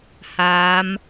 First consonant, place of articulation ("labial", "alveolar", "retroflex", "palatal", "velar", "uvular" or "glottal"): glottal